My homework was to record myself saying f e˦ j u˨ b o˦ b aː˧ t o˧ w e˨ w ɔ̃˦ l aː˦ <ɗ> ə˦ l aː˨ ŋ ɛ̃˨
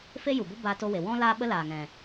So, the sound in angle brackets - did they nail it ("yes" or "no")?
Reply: no